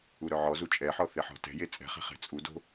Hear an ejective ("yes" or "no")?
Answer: yes